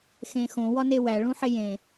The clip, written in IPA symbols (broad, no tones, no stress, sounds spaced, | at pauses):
x ẽ x õ w ɒ n e w æ ɭ ũ ħ e j ẽ